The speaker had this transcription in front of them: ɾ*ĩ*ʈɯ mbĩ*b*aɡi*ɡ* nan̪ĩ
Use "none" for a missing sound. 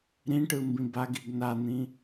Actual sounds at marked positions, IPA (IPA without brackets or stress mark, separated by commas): ĩ, b, ɡ